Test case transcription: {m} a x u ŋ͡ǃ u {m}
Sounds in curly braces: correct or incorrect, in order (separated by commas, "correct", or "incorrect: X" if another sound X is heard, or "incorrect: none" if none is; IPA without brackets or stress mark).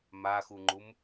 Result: correct, correct